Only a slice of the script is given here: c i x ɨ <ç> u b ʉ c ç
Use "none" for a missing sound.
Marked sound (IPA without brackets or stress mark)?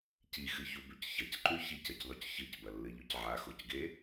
ç